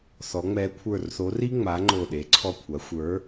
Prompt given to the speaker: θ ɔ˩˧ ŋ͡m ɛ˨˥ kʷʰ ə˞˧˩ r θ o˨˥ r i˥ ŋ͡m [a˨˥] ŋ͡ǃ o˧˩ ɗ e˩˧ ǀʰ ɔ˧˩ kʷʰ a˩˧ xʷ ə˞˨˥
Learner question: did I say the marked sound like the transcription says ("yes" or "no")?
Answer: yes